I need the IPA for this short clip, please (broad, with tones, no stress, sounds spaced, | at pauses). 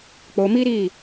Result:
k͡p o˨ m i˦ ɾ i˦˨